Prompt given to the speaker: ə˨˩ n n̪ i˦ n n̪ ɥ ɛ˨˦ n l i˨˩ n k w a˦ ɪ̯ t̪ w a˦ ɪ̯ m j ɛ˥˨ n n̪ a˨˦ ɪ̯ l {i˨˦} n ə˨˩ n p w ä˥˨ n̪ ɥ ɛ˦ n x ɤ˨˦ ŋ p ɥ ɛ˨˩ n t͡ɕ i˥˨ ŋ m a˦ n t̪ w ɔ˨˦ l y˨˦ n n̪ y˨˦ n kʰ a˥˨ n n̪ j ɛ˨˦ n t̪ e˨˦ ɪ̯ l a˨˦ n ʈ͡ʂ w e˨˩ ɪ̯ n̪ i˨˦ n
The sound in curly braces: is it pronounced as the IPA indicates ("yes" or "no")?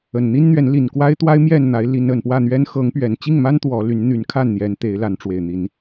yes